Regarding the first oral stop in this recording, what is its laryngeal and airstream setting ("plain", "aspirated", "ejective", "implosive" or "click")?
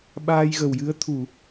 implosive